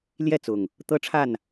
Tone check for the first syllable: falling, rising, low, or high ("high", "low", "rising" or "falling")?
falling